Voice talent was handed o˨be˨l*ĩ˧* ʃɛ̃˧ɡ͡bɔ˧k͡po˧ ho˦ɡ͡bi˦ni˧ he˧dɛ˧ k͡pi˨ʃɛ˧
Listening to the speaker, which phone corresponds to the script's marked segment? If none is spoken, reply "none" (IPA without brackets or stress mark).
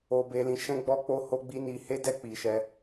ĩ˨